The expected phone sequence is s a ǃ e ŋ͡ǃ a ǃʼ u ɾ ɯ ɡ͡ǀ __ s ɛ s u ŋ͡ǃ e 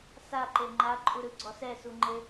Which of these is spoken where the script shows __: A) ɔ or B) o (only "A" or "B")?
A